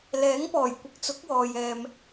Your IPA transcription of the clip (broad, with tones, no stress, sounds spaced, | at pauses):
l ɛː˨˥ ŋ p ɔː˨˩ j kʷ ɪ˨ k̚ t͡s ʊ˨˥ k̚ w ɔː˨ j ɛː˨ m